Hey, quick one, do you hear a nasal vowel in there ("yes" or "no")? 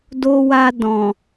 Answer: yes